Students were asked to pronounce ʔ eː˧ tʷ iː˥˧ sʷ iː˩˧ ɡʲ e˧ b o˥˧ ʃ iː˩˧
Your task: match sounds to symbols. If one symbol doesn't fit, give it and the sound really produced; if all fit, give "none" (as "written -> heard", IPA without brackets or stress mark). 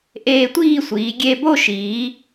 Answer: none